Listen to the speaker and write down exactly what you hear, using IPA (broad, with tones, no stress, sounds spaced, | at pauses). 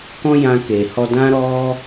k ɔ̃˦ j ã˧ k e˨ h ɔ˧ d ã˦ ɾ ɔ˦